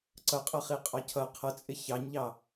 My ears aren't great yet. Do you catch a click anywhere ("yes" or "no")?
yes